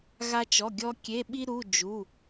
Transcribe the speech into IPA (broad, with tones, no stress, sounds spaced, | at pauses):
ɣ a˧ t͡ʃ ɔ˩˧˩ ɡʲ ɔ˧ kʲ e˩˧˩ ɓ i˧ ɾ u˩˧˩ d͡ʒ u˩˧˩